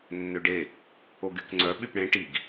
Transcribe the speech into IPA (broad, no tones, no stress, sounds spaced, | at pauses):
nː ø ɖ e | o ɡ y k ŋ͡ǀ œ ɓ y p ɽ ẽ ʈ i ɡ